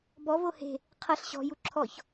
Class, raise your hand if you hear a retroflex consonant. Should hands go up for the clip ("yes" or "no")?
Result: no